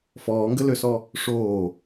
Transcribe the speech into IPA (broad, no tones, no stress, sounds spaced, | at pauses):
f ɔː ŋ ɡ ə l ø s ɔ | ʂ oː